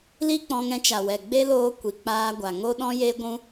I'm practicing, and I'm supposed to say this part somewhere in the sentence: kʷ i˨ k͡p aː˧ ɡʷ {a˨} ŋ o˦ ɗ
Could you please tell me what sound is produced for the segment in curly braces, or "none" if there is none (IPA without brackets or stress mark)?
a˨